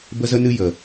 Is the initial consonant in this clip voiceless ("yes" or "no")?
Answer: no